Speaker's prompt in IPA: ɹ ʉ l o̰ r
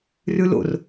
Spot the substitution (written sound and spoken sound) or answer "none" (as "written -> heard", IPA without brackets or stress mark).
ɹ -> r